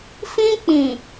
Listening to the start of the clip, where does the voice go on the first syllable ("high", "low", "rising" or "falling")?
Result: high